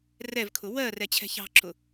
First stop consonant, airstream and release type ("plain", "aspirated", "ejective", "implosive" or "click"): aspirated